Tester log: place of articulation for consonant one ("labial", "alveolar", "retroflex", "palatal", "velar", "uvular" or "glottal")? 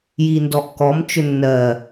palatal